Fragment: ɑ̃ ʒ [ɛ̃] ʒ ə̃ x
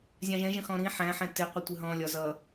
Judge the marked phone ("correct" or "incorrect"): correct